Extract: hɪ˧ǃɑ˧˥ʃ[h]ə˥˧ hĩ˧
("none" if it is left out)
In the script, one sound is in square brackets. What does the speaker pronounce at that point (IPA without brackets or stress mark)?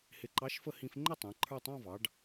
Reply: f